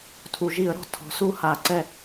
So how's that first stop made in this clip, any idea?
aspirated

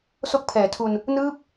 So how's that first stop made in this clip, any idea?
plain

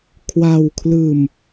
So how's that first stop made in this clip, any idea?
aspirated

